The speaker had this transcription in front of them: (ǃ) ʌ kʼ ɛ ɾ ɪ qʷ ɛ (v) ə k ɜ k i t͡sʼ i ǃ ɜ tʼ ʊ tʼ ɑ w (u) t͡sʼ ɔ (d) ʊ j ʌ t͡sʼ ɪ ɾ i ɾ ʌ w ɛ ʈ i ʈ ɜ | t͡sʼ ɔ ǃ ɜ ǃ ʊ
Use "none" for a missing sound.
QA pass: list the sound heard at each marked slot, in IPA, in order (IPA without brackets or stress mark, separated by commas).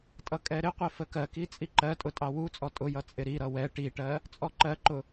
tʼ, f, u, tʼ